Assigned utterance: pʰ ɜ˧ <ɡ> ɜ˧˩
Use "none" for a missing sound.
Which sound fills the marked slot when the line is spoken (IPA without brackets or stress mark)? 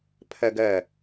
ɡ